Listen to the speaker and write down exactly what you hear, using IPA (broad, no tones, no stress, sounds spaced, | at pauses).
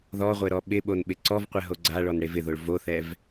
ð ɔ ʁʷ e ɾ ɔ ɓ ɪ ɓ o n ɓ ɪ ǀ ɔ v qʷ ɛ ɦ o ɡ͡ǀ a ɭ ɔ n ɽ e v ɪ ð o ɭ v o θ ɛ v